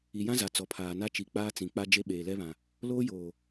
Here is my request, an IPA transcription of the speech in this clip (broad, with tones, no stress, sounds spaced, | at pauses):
i˨ j ã˦ z a˨ t͡s ɔ˨ pʰ aː˨ n a˦ t͡ʃ i˨ k͡p aː˦ t͡s ĩ˨ k͡p a˦ d͡ʒ e˦ ɓ eː˨ l ɛ˦ β ã˨ | l oː˦ j oː˨